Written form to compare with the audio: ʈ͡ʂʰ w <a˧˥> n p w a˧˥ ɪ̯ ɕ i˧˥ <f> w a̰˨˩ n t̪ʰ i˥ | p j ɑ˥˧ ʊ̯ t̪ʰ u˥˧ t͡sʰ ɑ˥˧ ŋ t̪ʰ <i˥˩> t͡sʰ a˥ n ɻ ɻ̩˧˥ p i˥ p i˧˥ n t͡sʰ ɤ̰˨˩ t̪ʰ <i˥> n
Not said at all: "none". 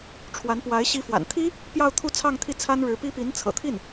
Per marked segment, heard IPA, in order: a˧˥, f, i˥˩, i˥˩

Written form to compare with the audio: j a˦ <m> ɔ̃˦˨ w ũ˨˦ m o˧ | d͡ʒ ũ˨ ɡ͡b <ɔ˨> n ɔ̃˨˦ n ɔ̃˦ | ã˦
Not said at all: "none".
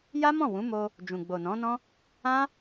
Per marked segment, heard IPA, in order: m, o˨

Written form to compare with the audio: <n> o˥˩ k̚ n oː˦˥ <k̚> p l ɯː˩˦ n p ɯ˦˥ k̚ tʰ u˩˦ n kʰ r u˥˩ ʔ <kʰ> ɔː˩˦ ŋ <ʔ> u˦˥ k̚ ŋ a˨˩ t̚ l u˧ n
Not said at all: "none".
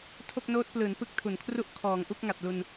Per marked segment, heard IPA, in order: tʰ, t̚, kʰ, ʔ

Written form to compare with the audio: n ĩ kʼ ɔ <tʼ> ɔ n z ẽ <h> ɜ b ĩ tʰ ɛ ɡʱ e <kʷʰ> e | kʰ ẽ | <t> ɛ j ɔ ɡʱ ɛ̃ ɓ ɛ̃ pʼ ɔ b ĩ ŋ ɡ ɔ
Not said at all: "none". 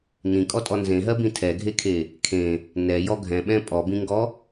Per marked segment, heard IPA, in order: tʼ, ɦ, kʰ, n

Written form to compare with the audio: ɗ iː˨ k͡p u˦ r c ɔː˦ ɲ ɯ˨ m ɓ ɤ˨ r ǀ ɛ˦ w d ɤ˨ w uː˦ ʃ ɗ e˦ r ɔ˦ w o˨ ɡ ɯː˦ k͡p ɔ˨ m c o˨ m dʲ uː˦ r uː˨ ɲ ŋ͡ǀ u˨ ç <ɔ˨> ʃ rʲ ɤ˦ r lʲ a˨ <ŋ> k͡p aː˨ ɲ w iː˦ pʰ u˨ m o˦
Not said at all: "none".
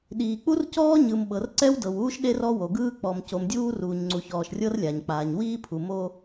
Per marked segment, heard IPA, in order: ɔː˨, ɲ

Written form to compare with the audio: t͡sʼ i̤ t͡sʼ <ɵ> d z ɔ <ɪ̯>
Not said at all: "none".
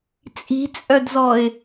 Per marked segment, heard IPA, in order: œ, ɪ̯

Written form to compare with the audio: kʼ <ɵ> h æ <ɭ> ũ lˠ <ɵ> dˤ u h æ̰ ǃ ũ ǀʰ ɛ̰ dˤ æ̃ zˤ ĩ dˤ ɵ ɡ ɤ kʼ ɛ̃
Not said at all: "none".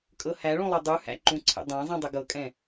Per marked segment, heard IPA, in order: ɤ, ɭ, ø

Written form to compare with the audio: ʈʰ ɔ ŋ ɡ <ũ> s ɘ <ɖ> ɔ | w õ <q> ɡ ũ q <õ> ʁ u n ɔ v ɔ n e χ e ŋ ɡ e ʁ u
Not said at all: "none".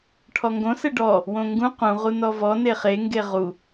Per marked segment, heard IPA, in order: õ, ɖ, ŋ, ũ

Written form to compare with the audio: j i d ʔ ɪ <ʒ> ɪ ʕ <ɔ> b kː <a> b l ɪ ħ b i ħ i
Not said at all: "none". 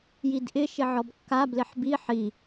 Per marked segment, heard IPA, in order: ʃ, ɔ, a

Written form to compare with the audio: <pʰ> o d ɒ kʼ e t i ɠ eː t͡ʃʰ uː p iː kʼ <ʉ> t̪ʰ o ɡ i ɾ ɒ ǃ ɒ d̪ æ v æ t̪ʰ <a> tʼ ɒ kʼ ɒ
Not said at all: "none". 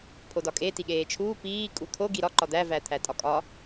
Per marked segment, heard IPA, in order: pʰ, u, æ

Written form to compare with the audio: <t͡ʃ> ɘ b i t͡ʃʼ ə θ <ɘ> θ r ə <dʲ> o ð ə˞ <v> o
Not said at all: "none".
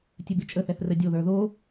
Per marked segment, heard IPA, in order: tʲ, ɛ, dʲ, ð

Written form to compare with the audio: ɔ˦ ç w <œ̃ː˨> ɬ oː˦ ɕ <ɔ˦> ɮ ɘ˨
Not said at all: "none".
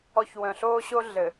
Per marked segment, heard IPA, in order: œ̃˨, o˦

